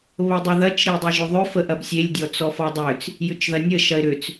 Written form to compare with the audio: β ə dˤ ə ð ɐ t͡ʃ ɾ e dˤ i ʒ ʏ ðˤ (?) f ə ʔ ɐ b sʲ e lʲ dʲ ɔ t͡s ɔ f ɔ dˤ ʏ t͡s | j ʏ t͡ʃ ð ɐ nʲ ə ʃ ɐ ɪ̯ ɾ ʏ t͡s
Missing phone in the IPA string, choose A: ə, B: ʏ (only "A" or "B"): B